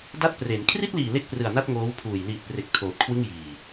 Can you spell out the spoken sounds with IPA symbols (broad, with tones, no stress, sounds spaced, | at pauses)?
d a˦˥ t̚ p r e˩˦ n kʰ r i˥˩ t̚ l iː˨˩ l e˥˩ k̚ p r ɯ˨˩ a̯ n a˥˩ t̚ ŋ oː˦˥ w pʰ uː˨˩ j l iː˨˩ t̚ p r e˨˩ k̚ tʰ oː˨˩ t̚ kʰ w ɯ˥˩ ŋ j iː˨˩